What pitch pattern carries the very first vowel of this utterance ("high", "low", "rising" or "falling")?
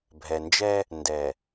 low